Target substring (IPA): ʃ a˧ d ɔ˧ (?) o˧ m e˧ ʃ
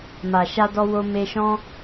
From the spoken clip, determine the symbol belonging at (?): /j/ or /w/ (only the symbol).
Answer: w